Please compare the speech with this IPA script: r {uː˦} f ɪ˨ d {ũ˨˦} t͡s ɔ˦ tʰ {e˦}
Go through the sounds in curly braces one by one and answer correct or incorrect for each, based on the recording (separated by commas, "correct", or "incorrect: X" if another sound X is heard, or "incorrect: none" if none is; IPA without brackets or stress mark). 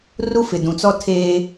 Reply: incorrect: u˦, incorrect: ũ˨, incorrect: eː˦